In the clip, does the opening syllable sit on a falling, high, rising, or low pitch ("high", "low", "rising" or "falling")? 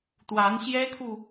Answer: rising